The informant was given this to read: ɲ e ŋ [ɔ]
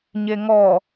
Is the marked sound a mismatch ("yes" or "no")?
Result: no